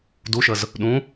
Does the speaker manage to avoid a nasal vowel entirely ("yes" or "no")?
no